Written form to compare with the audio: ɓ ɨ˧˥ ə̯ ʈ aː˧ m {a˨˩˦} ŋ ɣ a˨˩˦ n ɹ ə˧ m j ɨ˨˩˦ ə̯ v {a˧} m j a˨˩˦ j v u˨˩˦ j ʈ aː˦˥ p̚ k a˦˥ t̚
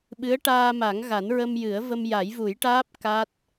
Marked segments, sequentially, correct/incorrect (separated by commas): correct, incorrect